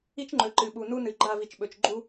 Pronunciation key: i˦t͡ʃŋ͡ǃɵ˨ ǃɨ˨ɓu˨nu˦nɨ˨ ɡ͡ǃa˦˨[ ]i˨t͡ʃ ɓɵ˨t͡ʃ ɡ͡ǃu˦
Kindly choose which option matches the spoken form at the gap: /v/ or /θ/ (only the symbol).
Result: v